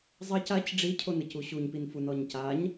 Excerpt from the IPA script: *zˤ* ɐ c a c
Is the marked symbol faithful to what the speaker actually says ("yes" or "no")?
yes